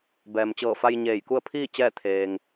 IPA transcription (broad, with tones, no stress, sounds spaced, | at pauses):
b ɛː˩ m t͡ɕ ɤː˧˩ f a˧ j ɲ eː˧˩ j k u˥˨ ə̯ pʰ iː˥˨ t͡ɕ ɛː˥˨ t̪ʰ eː˩ ŋ